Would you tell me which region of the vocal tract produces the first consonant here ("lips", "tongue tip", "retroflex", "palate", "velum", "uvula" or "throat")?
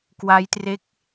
velum